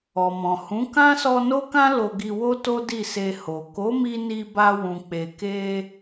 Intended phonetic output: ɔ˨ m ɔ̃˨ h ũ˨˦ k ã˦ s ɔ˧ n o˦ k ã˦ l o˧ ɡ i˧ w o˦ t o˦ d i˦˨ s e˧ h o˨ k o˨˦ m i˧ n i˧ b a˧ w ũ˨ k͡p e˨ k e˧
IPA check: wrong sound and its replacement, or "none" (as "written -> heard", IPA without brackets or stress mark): none